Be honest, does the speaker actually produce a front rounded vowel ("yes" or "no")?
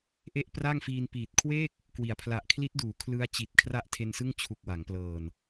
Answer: no